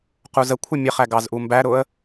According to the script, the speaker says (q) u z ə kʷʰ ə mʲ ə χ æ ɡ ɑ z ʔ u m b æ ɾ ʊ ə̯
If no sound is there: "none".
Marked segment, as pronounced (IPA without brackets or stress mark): q